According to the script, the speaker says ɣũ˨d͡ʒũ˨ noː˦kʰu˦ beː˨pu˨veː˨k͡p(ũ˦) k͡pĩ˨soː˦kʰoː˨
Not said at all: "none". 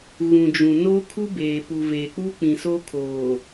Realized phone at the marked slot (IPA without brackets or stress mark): u˦